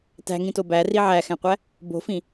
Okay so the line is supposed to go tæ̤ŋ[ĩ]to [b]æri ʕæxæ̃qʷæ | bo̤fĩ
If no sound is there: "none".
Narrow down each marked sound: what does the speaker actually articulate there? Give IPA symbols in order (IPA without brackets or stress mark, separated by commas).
ĩ, b